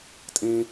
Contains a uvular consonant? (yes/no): no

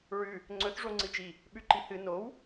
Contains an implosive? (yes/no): yes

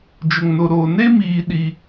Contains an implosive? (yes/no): yes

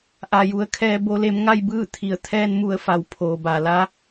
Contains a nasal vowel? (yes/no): no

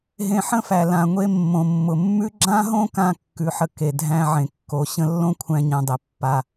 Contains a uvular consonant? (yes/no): no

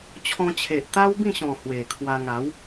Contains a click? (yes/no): no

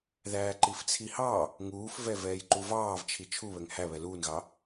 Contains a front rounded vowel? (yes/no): no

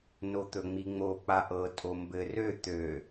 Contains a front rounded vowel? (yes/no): yes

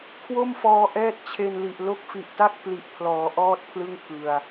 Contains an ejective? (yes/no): no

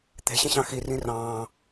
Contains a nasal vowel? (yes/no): yes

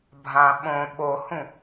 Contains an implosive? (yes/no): yes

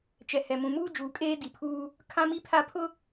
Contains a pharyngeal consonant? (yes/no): no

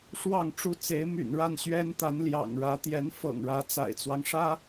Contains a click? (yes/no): no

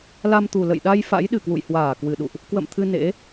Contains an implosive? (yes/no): yes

